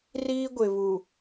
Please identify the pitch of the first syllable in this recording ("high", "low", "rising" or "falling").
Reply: high